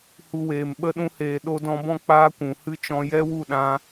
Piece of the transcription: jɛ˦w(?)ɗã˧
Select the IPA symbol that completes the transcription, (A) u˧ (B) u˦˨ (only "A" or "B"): B